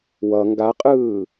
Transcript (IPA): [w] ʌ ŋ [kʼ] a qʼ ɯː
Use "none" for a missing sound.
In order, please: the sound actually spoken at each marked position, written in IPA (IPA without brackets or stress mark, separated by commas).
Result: w, ɡ